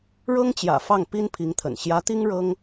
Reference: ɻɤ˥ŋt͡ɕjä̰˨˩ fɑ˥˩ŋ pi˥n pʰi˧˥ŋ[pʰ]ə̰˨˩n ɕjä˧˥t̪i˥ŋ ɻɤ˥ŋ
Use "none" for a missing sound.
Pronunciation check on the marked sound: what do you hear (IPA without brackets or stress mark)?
t̪ʰ